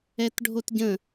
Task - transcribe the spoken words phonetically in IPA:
ɛ t ɖʱ o t ɟ ə̃

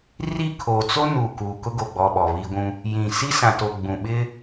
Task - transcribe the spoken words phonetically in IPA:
r i˦˨ kʰ oː˨ t͡s o˦ n uː˨ k uː˨ k ʊ˦ ɡ o˨ ɡ͡b ɔ˨ ɓ ɔ˨ β i˦ ɡʷ ũ˦ | j ĩ˨ s i˦ s ã˨ t o˨ ɡ͡b ũ˨ ɓ ɪ˦

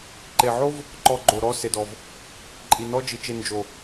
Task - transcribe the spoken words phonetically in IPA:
ǃ e˨ ʕ o˦ v | ǃ ɔ˧ ɡ͡ǃ o˨ ɾ ɔ˦ s e˨ d ɔ˨ v | ǃʼ i˨ n ɔ˦ d͡ʒ i˨ t͡ʃ e˧ n d͡ʒ o˨

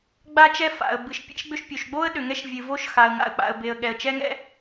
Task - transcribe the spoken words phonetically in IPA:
ɡ͡b a˦ t͡ʃ ɛ˦ f a̰˩ ə̯ b ɨ˩ ʃ pʲ ɛ̰˦ ʃ ɡ͡b ʏ˦ ʃ pʲ o˩ ʃ ɡ͡b o˦ ə̯ ɗ ʏ˩ ŋ ɛ˦ ʃ vʲ ɨ˩ v o˦ ʃ x a˩ ə̯ ŋ a̰˩ ə̯ k͡p a̰˩ ə̯ b e˩ ə̯ ɠ ɛ˩ ə̯ t͡ʃ ɛ˦ ŋ ɛ̰˦

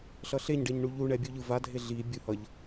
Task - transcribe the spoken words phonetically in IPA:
ɬ ʌ ɬ e ɲ ɖ e ɲ ɳ u ʎ u ɳ ɛ bʲ u ʎ ɯ v a dʱ e ɮ i bʲ u h ʌ ʎ

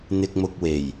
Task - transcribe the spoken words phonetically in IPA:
n̪ ɪ˨ k̚ m ʊ˨ k̚ w e˨˩ j

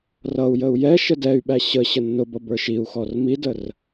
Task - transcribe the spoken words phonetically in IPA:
r ʌ u̯ j ə u̯ j ɛ ʃ ə d ɛ y̯ ɓ æ ɕ ə ɕ ə nː ʊ b ʌ b ə˞ ʃ i u̯ x ɔ r m i d ə r

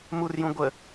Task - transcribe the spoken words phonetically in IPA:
m u r j ũ ɡʷ ə

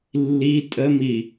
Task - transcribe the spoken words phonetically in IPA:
lː i tʼ ə m i

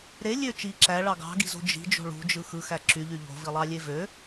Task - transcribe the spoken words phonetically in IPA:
ɾ e lʲ ø t͡ʃ i ǁ æ ɭ ɑ ɡ ɑ̤ ɡ i̤ z o̤ d͡ʒ i̤ d͡ʒ o̤ ɭ ṳ d͡ʒ ɯ x ɯ x æ ǁ y ʎ y ʎ o̤ v i lˠ ɑ lʲ e v ø

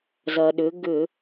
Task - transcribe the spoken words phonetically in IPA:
z ɐ˩ ɗ ʏ˩˧ ɡ ʏ˧˩˧

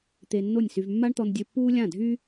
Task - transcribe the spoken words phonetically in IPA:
t̪ e˧ nː o˥˩ nʲ s y˧ v mː a˥ ɳ t̪ ɔ˧ n dʲ ø˧ pː uː˥ lʲ ã˥˩ dʱ y˥

